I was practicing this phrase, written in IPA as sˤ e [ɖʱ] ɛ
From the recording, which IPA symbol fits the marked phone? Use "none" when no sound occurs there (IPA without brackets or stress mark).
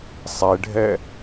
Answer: ɖʱ